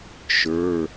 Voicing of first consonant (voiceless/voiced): voiceless